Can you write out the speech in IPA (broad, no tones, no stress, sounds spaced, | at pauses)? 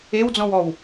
e w d͡z ɔ̃ w ɔ w